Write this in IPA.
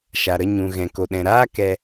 ʃ a˨ ɾ ə˧ ɲ ũ˨ ɣ ɛ̃˨ k o˨ ɗ ɛ̃˨ ɾ aː˦ k ɛ˧

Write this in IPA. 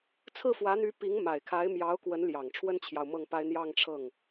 t͡sʰ ɹ̩˥˩ f w ä˧˥ n̪ y˧˥ p i˧˥ ŋ m a˨˩ ɪ̯ kʰ a˧˥ ɪ̯ m j ɑ˧˥ ʊ̯ k w ə˧˥ n l j ɑ˨˩ ŋ ʈ͡ʂʰ w ə˥ n t͡ɕʰ j ɑ˨ ʊ̯ m ɤ˥˩ ŋ p a˥ ɪ̯ n̪ j ɑ˥˧ ŋ ʈ͡ʂʰ ɤ˥˩ ŋ

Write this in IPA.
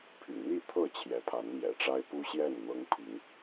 pʰ y̰˨˩ n̪ i˥˨ t̪ʰ ɤ˥˨ t͡ɕʰ j ɛ˨˦ pʰ a˨˦ n m j ɛ̰˨˩ ʈ͡ʂ a˦ ɪ̯ p u˦ ɕ j ɛ˥˨ n n̪ ɤ˦ ŋ pʰ i˨˦ ŋ

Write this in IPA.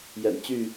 j ɛ̰˨˩ n t͡ɕ y˥˨

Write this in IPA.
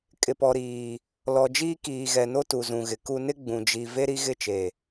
kʼ ɪ˨ p ɔ˨ ɾ iː˨ | l ɔ˨ d͡ʒ iː˦ k iː˨ ɣ ɛ˨ n o˦ t u˨ z ũ˨ ɣ ɪ˨ k u˦ n ɪ˦ ɡ͡b ũ˨ d͡ʒ i˨ v e˦ ɾ i˦ ɣ ɪ˦˨ t͡ʃ e˨

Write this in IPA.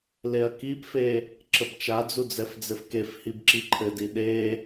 l e ɐ̯ k i p f e | ǁ ə b t͡ʃ a d͡z u d͡z ɛ f d͡z ɘ f k e f h i b ǁ i ǃʰ ɘ d i ɗ e

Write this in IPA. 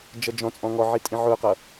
d͡ʒ ʌ d͡ʒ ɔ̃ t͡sʼ ɔ̃ ŋ ɔ ʕ i tʼ ĩ ʕ ʊ q ʌ

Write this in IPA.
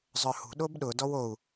zˤ œ h ṳ ɗ o b ɗ ʊ d ɔ w o u̯

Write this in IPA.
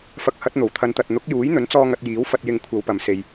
f ɐ˨˥ k̚ h ɐ˨˥ t̚ n̪ o˨˩ w t̪ʰ ɐ˨˧ n t̪ ɐ˨ t̚ n̪ ʊ˨˥ k̚ j uː˨˥ j n̪ ɵ˨˥ n t͡s ɔː˧ ŋ ɐ˧ t̚ j iː˨˥ w f ɐ˧ t̚ j ɪ˧ ŋ kʷʰ ɐ˨˧ w p ɐ˨ m s e˨ j

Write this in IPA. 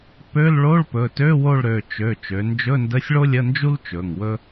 p ø˧˥˧ l ɭ o˧˥˧ ɭ p ɵ˩˧˩ t ø˧˥˧ w o˦˨ ɭ ɾ ø˩˧˩ t͡ʃ ø˩˧˩ t͡ʃ ø˩˧ n d͡ʒ ɵ˧˥˧ n d ə˧˥˧ sʲ ɭ o˥ lʲ ə˧˥˧ n d͡ʒ u˥ l t͡ʃ ɵ˩˧˩ ŋ w ɵ˥

